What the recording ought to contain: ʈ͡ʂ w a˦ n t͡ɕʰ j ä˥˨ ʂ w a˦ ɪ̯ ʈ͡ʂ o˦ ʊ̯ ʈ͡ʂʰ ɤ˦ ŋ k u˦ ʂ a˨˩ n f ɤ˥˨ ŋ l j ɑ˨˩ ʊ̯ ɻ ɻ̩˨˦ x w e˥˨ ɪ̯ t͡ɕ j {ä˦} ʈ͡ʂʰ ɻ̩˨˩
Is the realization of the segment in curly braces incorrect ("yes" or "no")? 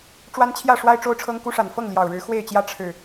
no